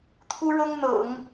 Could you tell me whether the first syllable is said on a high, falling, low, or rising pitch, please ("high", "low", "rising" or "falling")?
high